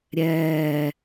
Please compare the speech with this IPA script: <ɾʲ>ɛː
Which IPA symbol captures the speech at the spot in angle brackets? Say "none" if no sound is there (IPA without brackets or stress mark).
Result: ɾʲ